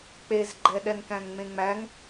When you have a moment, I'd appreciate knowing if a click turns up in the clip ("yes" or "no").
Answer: yes